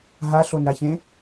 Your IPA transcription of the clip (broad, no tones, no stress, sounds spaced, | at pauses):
ɦ a ɬ o n ɾ a ç ẽ